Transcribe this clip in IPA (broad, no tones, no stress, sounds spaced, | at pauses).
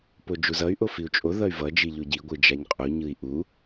p o d͡ʒ u z ʌ y̯ ʔ o f i u̯ t͡ʃʼ o ð ʌ y̯ v ʌ d͡ʒ i ʎ o ɟ i ɡʷ ɯ d͡ʒ a ɲ qʼ u ɲ ɯ i̯ ʔ u